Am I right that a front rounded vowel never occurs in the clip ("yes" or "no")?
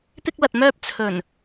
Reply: no